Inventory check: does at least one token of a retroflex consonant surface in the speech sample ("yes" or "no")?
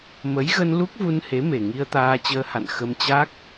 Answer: no